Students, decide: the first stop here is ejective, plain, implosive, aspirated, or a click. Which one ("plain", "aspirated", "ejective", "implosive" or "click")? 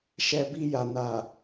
plain